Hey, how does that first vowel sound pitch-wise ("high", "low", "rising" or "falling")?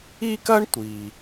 high